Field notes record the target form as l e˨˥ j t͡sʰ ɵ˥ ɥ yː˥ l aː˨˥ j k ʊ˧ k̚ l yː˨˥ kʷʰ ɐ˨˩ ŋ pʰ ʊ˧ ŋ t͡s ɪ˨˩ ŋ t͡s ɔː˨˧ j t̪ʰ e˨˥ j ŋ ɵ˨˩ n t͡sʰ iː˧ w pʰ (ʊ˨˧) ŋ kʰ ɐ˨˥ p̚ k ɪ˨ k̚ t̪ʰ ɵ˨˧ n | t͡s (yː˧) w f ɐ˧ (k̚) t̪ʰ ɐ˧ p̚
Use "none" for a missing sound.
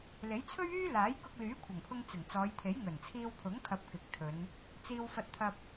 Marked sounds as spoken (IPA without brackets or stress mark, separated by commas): ʊ˨˥, iː˧, t̚